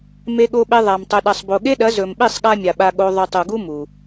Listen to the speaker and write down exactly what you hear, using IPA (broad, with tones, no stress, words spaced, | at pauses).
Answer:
me˧ɠo˧ɓe˧ ðˤa˨m tˤɵ˨ɗɐ˨sˤbo˨ɠe˦ ɗɐ˨˦zɵ˨mɓi˦˨sˤ ɠa˦mʲa˨ɓa˧ɠo˧ ðˤʉ˨tˤu˨ɡu˦ mu˨